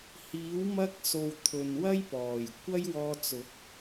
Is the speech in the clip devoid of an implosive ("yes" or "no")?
yes